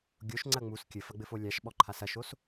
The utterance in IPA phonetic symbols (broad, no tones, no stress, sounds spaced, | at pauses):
ɡʲ o ʃ ŋ͡ǀ ɐ ŋ͡m u s kʲ ɘ f ɐ ɡ͡b ɘ f o lʲ a ʃ ɓ ɔ ǃʰ a s ɐ ʃ o s